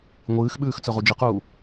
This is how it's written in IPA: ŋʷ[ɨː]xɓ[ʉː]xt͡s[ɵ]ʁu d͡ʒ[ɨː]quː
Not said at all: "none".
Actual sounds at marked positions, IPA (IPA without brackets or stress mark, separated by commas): ɨː, ʉː, ɵ, ɨ